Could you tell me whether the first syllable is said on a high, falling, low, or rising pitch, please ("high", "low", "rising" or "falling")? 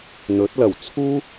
rising